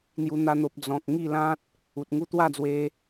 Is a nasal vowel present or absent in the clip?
present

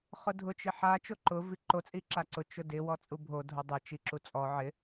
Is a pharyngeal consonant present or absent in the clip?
present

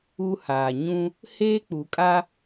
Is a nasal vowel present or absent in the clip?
present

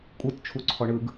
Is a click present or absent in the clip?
present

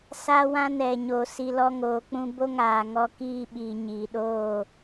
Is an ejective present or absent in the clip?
absent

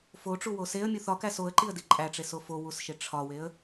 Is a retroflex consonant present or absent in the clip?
present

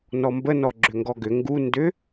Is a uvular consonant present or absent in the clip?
absent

